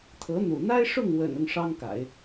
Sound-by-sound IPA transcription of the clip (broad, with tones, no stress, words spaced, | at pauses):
t̪ʰɤ˧˥n̪ṵ˨˩ n̪a˥ɪ̯ ʂʊ˥˩ŋwə̰˨˩n ʊ˥˩ŋʂɑ˥ŋka̰˨˩˦ɪ̯